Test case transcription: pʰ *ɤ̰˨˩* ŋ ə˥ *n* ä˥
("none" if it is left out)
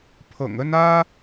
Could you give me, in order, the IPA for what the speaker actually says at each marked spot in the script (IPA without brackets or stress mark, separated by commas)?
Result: ɤ̰˨˩, n